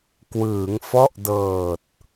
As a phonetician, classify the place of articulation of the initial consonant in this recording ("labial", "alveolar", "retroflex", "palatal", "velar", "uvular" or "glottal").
velar